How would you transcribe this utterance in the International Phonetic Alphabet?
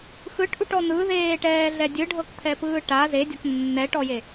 x ɯ ʈ ʔ u ʈ ɔ n̪ ɯ ð eː ʈ ɛː ɮ ɛ dʲ ɯ ɖʱ ɤ k t̪ʰ ɛ p ɯː ʈ a z e dʲ ɔ k nː ɛ ʈ ɔ j e

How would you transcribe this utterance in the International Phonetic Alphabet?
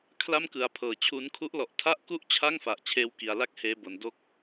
kʰ l a˥˩ m k ɯ˩˦ a̯ pʰ ɤː˩˦ t͡ɕʰ u˦˥ n kʰ u˦˥ ʔ l ɔ˨˩ ʔ tʰ a˥˩ ʔ k u˥˩ ʔ t͡ɕʰ a˥˩ ŋ f a˨˩ ʔ t͡ɕʰ eː˧ w k i˨˩ a̯ l a˦˥ k̚ h eː˧ b o˨˩ n d o˦˥ k̚

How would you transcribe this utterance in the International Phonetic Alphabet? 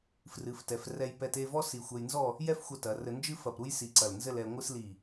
f r ɨ˩˧ f t ɛ˩˧ f r ɛ˧ j p ɛ˧ t e˥˧ v ɔ˥ s i˧˩ xʷ ɛ˧ j n z ɔ˥˧ | j ɛ˥ f xʷ ɐ˧ t ɐ˩˧ r ɘ˧ n d͡ʒ ɨ˥ f ɐ˧˩ p ɾ u˥ j s i˧ ǀ ɐ˧˩ l n z ɘ˥˧ l ɛ˧ ŋʷ ɨ˥ s l i˧˩

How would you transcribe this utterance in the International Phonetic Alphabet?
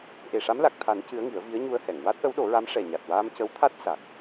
ʔ e˨˩ ʂ a˧˥ m l a˨˩ k̚ t̪ʰ a˨˩˦ n c ɨ˧˥ ə̯ ŋ i˨˩˦ ə̯ v i˧˥ ə̯ ɲ u˧ ə̯ h ɛ˨˩˨ ŋ w a˦˥ t̚ ʔ ə˧˥ w ɗ o˨˩˦ ɹ a˧˥ m ʂ ɛ˨˩ ɲ a˨˩ t̚ w aː˧ m c ə˧˥ w t̪ʰ a˦˥ t̚ s a˨˩ k̚

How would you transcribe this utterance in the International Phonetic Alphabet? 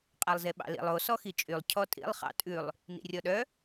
qʼ æ lˠ z e ɓ ɑ̰ l ḭ lˠ o s ɔ x i t͡ʃʼ y lˠ cʰ ɔ tʼ ḭ lˠ χ ɑ̰ tʼ ʉ lˠ | n ḭ rʲ ɔ ɗ œ

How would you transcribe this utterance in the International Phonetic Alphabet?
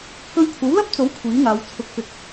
k ɵ˧ ɥ kʷʰ ɐ˨˥ w l ɐ˥ p̚ t͡s o˨˥ w kʷʰ iː˨˥ ŋ aː˨˧ w t͡sʰ ʊ˨ k̚ f ɪ˨˥ k̚

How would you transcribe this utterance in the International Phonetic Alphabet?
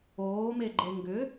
oː m e ɡ͡ǃ e ŋ ɡ ʏ

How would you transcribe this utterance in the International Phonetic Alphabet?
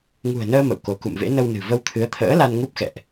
ŋ ṳ˨˩ ə̯ n əː˧ m ə̰˧˨ w k o˧ k ṵ˧˨ m v ḛ˧˥ n ə˧ w n ɨ̤˨˩ v ə˧ w t̪ʰ ɨ˨˦ ə̯ t̪ʰ ə̰ː˧˥ l a˧ n ŋ u˦˥ p̚ x ɛ̰˧˨ ʔ

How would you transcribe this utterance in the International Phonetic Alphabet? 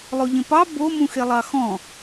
lˠ o ʎ ẽ p ɑ b o m ũ x e lˠ ɑ x ɔ̃

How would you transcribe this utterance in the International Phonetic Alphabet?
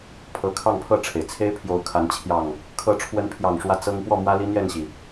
pʰ ɤ˨˦ kʰ ɑ˥˨ ŋ pʰ ɤ˥˨ ʈ͡ʂʰ e˩ ɪ̯ t͡sʰ e˦ ɪ̯ pʰ j o˨˦ ʊ̯ kʰ a˨˦ n t͡ɕʰ j ɑ˨˩ ŋ | kʰ ɤ˨˦ ʈ͡ʂʰ w ə˨˦ n pʰ j ɑ˨˩ ŋ ʂ w ä˨˦ t͡s ɤ˦ ŋ p w ɔ˥˨ m w ä˦ l i˦ n̪ j ɛ˥˨ n ɕ i˩

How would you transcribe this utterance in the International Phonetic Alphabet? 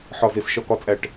ħ ɒ˨˩ z e˨˩ s ʃ ɒ˨˩ k ɒ˨˩ t͡sʼ æ˨˩ ʈ

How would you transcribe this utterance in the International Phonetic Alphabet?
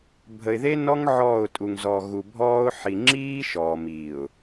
bʱ ə˨ ɪ̯ ð e˦ n ɔ˦ ŋ ʕ ɔː˦˨ ʊ̯ tʼ u˨ ŋ z ɔ˨ ɣ u˨ bʱ ɔː˦ ʊ̯ ħ i˨ ŋ͡ǁ iː˦ ʃ ɔː˨ m iː˨ ʊ̯

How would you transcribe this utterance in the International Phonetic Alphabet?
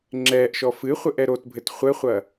ŋ͡ǁ ɛː ʔ ʃ ɔ f ɨ χʷ ɘ ʔ ɛ ɾ o t bʱ ɘ t χʷ ɘ χʷ ɐ

